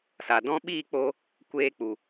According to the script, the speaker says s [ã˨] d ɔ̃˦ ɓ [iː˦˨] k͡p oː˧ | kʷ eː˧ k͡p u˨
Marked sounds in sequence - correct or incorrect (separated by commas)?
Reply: incorrect, correct